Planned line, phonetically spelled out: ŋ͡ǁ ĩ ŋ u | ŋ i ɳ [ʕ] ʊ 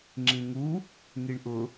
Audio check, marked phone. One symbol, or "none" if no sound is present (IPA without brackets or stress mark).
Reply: ʔ